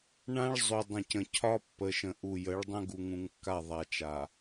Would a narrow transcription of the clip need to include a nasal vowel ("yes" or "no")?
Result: yes